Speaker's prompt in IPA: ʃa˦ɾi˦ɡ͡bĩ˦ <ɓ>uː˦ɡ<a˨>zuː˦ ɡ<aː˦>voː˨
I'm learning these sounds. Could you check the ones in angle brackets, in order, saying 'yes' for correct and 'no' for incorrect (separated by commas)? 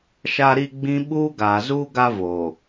yes, no, no